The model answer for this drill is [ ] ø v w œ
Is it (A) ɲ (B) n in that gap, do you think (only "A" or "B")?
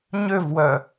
A